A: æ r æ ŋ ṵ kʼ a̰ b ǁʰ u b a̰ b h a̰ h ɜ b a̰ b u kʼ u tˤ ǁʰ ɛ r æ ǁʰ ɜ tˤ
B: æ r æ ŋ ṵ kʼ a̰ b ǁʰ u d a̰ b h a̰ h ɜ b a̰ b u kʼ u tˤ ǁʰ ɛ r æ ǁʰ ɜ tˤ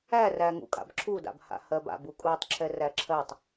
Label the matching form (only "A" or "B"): B